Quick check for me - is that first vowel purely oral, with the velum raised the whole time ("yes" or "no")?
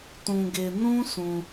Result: no